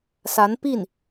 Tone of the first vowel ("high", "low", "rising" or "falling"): rising